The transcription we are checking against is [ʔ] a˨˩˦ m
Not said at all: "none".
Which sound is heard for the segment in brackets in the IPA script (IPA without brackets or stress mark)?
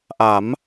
ʔ